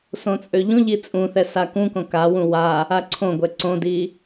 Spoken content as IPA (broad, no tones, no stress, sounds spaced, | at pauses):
s õ t͡sʼ ø ʎ ũ ʎ i t͡sʼ ũ θ ɛ s a k ũ k õ k a w ũ w a | a ǀʰ õ ɡʷ ɛ ǀ õ d i